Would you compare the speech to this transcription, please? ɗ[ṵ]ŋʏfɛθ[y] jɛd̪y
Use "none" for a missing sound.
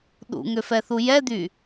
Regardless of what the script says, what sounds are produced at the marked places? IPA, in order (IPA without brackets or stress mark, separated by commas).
ṵ, u